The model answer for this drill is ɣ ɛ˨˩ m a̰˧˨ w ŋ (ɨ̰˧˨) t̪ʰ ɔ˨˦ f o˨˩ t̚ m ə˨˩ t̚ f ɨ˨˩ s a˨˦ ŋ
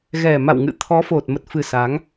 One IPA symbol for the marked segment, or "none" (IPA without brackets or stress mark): ɨ̰˧˨